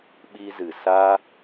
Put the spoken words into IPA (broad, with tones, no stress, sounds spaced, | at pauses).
ɓ i˧ z ɨ˨ s a˦